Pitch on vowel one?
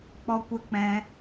high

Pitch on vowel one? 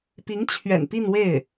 rising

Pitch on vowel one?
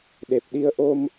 low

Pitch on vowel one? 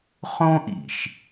high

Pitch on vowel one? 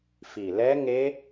low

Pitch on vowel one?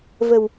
low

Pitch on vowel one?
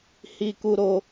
high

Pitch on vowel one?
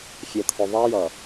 low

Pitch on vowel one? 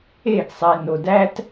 falling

